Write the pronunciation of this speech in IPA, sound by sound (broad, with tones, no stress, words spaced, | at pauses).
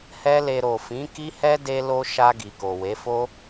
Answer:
hɛ˦le˧ ɾo˨fĩ˨˦ki˦hɛ˦ de˦lo˦ ʃa˧ ɡi˨ko˨we˨˦ fo˦